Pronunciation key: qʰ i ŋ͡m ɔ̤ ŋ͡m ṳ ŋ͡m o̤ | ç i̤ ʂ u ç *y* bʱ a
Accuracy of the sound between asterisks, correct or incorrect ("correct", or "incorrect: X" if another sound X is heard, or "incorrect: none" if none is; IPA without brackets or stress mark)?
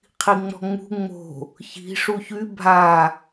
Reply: correct